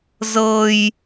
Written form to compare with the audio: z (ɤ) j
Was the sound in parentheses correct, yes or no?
yes